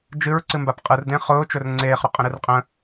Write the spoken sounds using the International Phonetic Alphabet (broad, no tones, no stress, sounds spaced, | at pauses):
d͡ʒ ɨ ɹ ǀ ɨ m b a p qʼ ɯ r d ẽ χ ʊː t͡ʃ ɵ r ŋ͡ǀ eː χ ɾ ʊ qʼ ə̃ ɾ ɨ r qʼ ə̃